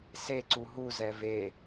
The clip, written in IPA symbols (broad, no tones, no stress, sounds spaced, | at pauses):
s e ǀ u ɦ u z ɛ v e